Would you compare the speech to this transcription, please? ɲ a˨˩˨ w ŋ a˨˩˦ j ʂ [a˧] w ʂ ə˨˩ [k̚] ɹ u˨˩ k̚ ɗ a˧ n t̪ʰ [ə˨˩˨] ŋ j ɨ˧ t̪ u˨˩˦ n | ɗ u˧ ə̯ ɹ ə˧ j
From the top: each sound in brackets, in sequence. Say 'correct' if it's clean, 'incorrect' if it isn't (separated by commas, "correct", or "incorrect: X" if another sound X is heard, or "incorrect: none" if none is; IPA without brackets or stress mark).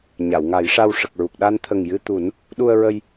correct, correct, incorrect: ə˨˩